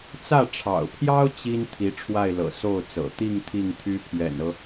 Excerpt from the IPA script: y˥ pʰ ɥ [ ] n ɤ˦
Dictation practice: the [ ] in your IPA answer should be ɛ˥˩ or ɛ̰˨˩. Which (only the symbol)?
ɛ̰˨˩